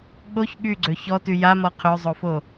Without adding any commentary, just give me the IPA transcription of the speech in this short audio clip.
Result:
ɠ o ç ɠ y ɡ͡ǀ ø ç ɔ t y j a m ɔ qʰ ø zˤ o f o

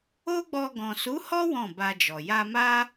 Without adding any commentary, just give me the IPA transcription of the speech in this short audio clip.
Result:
o˦ ɡ͡b ɔ˧ ɡ ɔ̃˨ s u˨˦ h ɔ˦ w ɔ̃˦˨ b a˧ d͡ʒ ɔ˨ j a˧ m a˦

